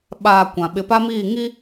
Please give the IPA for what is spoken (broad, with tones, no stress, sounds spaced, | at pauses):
ɓ aː˨ kʷ ã˨ ɓ ɪ˨ p a˦ m iː˦˨ ŋ i˦